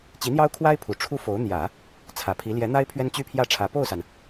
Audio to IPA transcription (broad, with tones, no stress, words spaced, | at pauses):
t͡ɕi˧˥n̪jɑ˥ʊ̯kʰwa˥ɪ̯ pʰu˨˩ʈ͡ʂʰu˥ fo˧˥ʊ̯ n̪jä˨˩˦ | t͡sʰä˨˩pʰi˧˥ ljɛ˧˥n̪a˥ɪ̯ pʰɥɛ˥nt͡ɕy˥pʰjä˥˩ʈ͡ʂʰä˧˥ po˥˩ʊ̯sa˩n